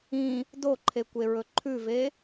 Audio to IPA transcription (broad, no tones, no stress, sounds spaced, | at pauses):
ĩ | d o ǃʰ e kʷ e ɹ ɵ ǃʰ ʉ v e